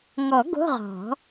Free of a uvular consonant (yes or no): no